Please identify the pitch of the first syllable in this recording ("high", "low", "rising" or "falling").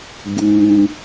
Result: low